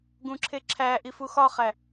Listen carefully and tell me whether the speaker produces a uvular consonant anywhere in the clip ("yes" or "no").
yes